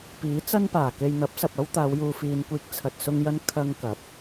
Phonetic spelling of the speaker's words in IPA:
p iː˨˥ t͡s ɐ˥ n p aː˨˩ k e˧ j n̪ ɐ˨˥ p̚ s ɐ˨ p̚ ɐ˥ w t̪ aː˨˧ w j uː˨ f iː˨ n kʷ iː˧ k̚ t͡sʰ ɐ˧ t̚ s ʊ˥ ŋ j ɐ˥ n kʰ ɐ˥ ŋ k ɐ˨˥ p̚

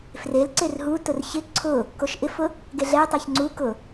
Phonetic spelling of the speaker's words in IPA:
f r e l ǀ e r ɦ u t ʊ r ç ɪ ǀʰ ʊ | k o ʃ ʔ ɪ f ʊ | ɡ e ɮ ɛ tˤ ɛ ç ŋ͡ǀ u k ʊ

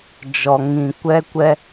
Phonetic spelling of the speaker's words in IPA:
d͡ʒ ɔ˨ ŋ ĩ˨ kʷ ɛ˦ kʷ ɛ˦

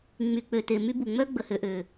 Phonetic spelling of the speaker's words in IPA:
ŋ͡m y˨ k͡p ø˨ t e˨ m y˦ b u˨ ŋ͡m œ˦ ɡ͡b ə˨ h ø˨ ʔ ø˨

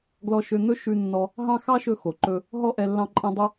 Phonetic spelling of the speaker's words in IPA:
ɡ l ɔ˧ ʃ ø˧ n̪ ɵ˥ ʃ ʉ˧ nː ɔ˧ | ɦ ɑ̃˥ x ɑ˥ ʃ ɵ˧ x o˩ ǃ ɵ˧ | ɦ ɔ˥ ʔ ɛ˧ lː ɑ̃˧ ǃʼ ɛ̃˧ dˤ œ˥

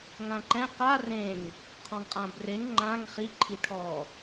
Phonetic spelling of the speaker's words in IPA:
ŋ ã ǃ ɛ̃ q a r ẽ ŋ | qʰ ɔ̃ ŋ qʼ ã b r e ŋ ŋ͡ǃ ã ŋ χ i ǃʰ i ʈʰ ɔ

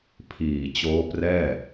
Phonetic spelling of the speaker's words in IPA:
pʰ iː˨˩ t͡ɕ oː˦˥ p r ɛː˥˩

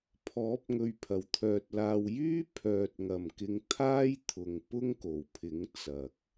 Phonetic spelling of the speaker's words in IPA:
pʰ ɔː˨˥ p̚ ŋ ɵ˨ ɥ pʰ ɐ˨˩ w t̪ʰ œː˨ t̚ l aː˨ w j yː˥ pʰ œː˨ t̚ ŋ ɐ˨˩ m k ɪ˨ ŋ t̪ʰ aː˥ j t̪ʰ ʊ˨ ŋ p ʊ˥ ŋ k o˨˩ w pʰ ɪ˨˥ ŋ t͡s ɐ˨ k̚

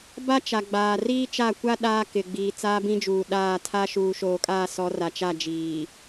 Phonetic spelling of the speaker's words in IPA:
b a˦ t͡ʃ a˨ ɡ͡b aː˨ r iː˦ t͡ʃ a˦˨ kʷ a˦ ɗ aː˦ k ɪ˨ ɡ͡b iː˨ t͡s aː˦ b ĩ˦ d͡ʒ uː˨ ɗ aː˦˨ tʰ a˦ ʃ uː˨ ʃ oː˨ kʼ aː˦˨ s ɔ˨˦ r a˨ t͡ʃ a˦˨ d͡ʒ iː˨

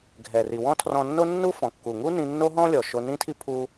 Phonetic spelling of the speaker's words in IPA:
ɡʱ ɛ˩ r i˩ w ɔ̃˥ tʰ r ɔ̃˧ nː o˥ nː u˥ f ɔ̃˩ kː u˩ ŋ u˥ n ĩ˧ nː o˥ ɦ ɔ̃˥ lʲ ɔ˩ ʃ o˧ n ĩ˥ tʰ i˥ pʰ u˧

